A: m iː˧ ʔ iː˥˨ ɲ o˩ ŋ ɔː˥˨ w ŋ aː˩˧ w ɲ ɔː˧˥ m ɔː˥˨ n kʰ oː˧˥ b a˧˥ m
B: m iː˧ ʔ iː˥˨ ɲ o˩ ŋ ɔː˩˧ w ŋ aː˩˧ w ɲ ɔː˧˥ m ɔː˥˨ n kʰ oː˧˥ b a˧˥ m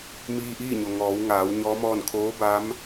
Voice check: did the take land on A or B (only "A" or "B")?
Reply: B